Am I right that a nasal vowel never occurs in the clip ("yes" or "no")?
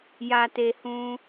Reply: no